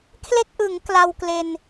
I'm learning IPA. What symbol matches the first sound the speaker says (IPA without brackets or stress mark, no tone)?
kʰ